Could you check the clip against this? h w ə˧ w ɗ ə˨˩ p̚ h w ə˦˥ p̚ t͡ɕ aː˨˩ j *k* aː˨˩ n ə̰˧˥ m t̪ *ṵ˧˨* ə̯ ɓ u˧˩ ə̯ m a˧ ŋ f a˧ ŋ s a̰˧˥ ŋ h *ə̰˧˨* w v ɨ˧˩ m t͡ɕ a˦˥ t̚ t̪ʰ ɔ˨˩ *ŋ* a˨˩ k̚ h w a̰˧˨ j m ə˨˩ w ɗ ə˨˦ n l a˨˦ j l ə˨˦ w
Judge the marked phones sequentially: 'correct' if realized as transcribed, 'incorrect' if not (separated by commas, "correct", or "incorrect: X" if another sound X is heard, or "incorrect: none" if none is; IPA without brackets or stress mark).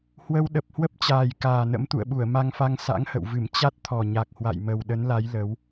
correct, correct, correct, incorrect: ɲ